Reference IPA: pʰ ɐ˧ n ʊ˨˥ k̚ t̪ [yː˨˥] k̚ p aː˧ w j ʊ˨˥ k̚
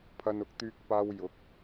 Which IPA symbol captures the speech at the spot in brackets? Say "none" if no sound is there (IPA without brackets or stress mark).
yː˧